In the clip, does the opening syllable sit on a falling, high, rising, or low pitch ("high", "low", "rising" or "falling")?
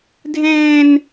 high